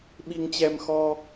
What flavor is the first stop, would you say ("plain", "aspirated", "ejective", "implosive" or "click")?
implosive